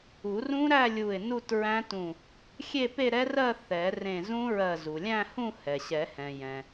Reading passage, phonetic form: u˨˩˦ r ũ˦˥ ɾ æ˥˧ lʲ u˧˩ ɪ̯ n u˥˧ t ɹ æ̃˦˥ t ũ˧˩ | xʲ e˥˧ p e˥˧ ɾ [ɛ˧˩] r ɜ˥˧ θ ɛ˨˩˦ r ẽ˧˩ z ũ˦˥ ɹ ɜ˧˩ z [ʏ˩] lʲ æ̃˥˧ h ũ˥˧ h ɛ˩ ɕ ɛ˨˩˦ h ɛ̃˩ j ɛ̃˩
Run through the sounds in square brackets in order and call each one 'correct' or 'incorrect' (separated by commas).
incorrect, incorrect